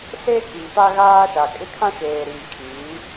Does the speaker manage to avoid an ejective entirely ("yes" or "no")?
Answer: no